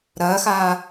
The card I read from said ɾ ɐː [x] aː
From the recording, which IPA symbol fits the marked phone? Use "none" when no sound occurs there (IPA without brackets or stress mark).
x